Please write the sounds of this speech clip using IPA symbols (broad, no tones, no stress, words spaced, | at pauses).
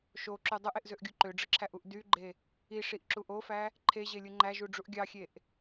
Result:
ʃoǁy dˤɯʔeʔzøʔɡʲu ǃøɖ͡ʐɯǁʰæʔuʔ dyɡ͡ǃe | iʂiʔǁuʔ ofæ | ǃʰeʑelʲɯ ŋ͡ǃæʒuɖ͡ʐuʔ ɡʲɑxʲeʔ